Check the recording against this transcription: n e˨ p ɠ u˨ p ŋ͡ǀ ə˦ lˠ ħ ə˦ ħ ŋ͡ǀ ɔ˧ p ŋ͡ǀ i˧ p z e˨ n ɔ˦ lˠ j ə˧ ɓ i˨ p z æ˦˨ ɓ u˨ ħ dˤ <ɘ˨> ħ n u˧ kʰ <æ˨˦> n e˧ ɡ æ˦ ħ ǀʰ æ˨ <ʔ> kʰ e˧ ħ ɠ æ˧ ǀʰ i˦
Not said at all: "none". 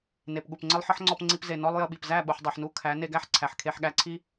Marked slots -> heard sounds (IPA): e˨, æ˨˦, ħ

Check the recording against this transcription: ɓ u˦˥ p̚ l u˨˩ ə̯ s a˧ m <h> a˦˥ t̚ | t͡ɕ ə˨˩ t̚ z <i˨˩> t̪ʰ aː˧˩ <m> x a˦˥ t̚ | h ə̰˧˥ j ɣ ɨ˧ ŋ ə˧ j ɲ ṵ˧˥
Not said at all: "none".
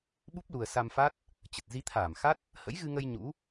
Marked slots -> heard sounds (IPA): f, i˨˦, m

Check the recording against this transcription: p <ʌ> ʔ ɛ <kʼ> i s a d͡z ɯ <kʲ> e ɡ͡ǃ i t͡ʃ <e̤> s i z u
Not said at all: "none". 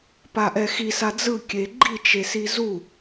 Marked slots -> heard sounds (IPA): a, x, kʲ, e

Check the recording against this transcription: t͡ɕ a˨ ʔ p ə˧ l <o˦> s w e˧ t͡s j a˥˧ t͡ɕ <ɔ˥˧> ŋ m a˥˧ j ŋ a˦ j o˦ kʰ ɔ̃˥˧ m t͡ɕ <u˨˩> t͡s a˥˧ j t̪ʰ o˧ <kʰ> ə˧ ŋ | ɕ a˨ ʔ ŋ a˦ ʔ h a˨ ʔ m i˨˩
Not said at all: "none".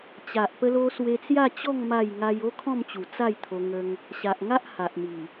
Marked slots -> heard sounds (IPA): o˧, ɔ˥˧, u˨˩, ŋ

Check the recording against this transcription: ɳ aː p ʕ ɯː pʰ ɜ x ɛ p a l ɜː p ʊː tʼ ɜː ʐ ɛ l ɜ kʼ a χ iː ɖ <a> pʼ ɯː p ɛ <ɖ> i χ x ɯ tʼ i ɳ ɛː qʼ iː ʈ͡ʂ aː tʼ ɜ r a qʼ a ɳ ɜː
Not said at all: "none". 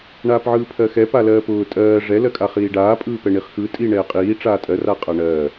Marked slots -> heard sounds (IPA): aː, ɳ

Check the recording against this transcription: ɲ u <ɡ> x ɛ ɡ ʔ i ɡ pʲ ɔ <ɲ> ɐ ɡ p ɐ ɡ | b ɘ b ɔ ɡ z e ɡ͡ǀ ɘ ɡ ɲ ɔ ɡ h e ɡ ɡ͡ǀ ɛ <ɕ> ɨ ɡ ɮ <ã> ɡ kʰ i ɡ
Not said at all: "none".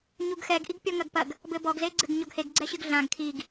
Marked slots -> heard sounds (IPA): ɡ, ŋ, ɕ, ã

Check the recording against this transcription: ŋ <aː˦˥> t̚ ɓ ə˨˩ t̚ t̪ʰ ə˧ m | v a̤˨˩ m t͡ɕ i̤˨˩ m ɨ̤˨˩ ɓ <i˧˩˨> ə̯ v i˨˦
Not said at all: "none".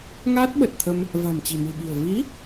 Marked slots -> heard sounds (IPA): aː˦˥, i̤˨˩

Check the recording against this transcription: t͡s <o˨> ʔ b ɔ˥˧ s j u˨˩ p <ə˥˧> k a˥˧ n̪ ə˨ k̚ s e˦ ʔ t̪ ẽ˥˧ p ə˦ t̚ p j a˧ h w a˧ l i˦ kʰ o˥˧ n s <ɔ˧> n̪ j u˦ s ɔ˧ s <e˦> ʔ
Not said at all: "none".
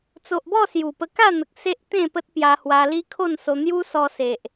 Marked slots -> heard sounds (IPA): o˨, ə˧, o˧, e˨

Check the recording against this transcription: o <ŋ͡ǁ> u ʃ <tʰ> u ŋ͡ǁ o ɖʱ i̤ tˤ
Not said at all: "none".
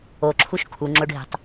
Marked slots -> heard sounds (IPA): ǁʰ, kʰ

